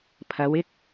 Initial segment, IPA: pʰ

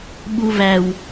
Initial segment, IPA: ɓ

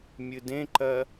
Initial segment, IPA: mʲ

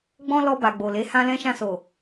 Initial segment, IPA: ɡ͡b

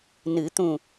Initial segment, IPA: n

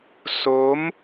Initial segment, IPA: s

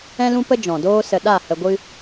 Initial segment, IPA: ɛ̃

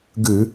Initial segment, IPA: ɡ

